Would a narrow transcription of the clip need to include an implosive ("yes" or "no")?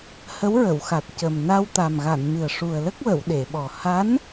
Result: yes